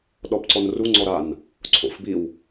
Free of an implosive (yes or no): no